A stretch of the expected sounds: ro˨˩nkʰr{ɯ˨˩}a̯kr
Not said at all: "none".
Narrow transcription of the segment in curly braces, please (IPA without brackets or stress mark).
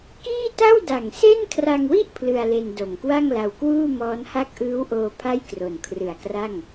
ɯ˨˩